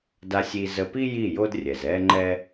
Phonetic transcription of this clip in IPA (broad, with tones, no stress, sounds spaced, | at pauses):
d a˧ sʲ i˧ z ə˧ p i˦ j i˦˨ j o˦ d rʲ ɛ˨ z ɛ˦ ŋ͡ǃ ɛ˦